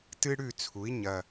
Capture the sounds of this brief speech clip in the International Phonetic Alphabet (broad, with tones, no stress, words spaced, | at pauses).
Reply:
tɨ˦ ɽʉ˥˨t͡sʰu˩˥i̯ ɲɐ˨˩